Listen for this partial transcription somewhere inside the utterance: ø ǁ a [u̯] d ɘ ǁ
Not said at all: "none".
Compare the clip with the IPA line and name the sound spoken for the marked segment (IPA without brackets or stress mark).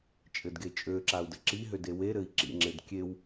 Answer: u̯